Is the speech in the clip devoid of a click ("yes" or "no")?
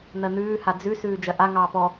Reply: yes